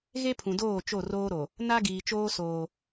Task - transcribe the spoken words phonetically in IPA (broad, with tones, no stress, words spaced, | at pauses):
ɣe˦pʰũ˨doː˦˨ t͡ʃo˦˨roː˦ɾo˨ | na˦ɡiː˨t͡ʃoː˦ soː˦